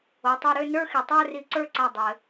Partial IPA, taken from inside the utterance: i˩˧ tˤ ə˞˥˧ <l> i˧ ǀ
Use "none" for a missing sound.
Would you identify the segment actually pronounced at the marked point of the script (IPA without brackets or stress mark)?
r